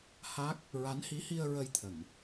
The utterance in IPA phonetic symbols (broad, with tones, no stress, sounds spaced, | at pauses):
h a˦˥ k̚ | ɹ a˧˥ n h i˧˥ h i˧ ə̯ ɹ ə˧ j t̪ʰ ə˨˩˨ ŋ